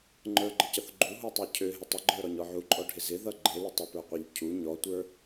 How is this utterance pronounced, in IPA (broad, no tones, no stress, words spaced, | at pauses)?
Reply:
ŋ͡ǃə˞ɡ͡ǃɪcʌθ ɡ͡ǃuɦutˤə˞ cʰøɦɪ tˤɪɡ͡ǃə˞ɾɔɲɔ ʕuǃʼɔɖʱɪ zɪðʌ ɡ͡ǃelɪ tˤɪpə˞qʷeʎ cʰu ɲɔtʷə˞